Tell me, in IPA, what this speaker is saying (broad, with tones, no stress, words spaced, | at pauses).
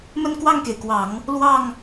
mə˥˧nkwɑ˥˩ŋke˩ɪ̯kwɑ˨˩˦ŋ | lwɑ˥˩ŋ